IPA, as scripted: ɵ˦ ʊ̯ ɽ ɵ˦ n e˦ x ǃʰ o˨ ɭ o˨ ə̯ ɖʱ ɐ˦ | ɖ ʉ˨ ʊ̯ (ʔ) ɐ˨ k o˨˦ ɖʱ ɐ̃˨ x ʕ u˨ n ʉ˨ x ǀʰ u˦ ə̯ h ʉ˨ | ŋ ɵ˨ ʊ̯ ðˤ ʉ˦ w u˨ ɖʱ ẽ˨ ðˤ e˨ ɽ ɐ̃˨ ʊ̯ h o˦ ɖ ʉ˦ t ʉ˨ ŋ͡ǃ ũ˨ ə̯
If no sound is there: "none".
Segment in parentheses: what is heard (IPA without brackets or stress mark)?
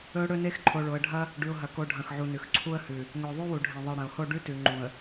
ɦ